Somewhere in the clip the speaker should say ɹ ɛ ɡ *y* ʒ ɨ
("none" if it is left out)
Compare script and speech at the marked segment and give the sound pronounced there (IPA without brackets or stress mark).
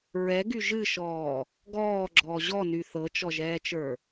y